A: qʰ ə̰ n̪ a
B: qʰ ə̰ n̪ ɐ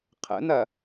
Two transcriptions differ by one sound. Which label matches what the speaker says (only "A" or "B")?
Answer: B